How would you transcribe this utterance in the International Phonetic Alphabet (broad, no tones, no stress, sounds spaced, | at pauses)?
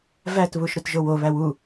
v æ t β u ʃ ɾ u t ʒ o w o β æ w u